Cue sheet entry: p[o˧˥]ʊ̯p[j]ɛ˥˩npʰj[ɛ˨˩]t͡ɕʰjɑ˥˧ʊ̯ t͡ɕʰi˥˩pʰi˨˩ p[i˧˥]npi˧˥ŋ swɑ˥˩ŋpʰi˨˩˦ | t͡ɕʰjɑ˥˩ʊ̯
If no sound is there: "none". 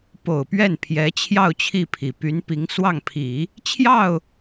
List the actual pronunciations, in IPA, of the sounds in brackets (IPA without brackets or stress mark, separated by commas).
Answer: o˨˩, ɥ, ɛ˧˥, y˧˥